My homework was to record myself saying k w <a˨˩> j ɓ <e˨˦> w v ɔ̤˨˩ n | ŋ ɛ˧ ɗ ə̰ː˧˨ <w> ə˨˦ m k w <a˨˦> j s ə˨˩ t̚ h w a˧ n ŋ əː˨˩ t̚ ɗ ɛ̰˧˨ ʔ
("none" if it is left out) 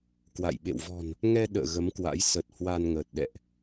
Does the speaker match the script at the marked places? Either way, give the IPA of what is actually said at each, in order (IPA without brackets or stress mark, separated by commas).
a̰˧˨, ḛ˧˨, ɣ, a̰˧˥